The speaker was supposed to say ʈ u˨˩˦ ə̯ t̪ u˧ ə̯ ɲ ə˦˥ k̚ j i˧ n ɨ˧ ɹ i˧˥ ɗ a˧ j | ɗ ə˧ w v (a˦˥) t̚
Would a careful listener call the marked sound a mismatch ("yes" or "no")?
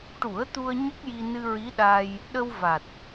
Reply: yes